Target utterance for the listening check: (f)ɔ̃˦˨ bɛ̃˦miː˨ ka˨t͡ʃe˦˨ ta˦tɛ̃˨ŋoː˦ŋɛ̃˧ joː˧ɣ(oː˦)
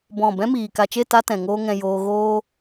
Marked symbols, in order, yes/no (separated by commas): no, yes